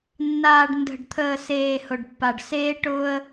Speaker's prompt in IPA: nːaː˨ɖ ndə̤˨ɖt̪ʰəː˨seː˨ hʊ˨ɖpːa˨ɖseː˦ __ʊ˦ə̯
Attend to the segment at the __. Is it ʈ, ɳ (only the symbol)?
ʈ